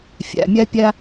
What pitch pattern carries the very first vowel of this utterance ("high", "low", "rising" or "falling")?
low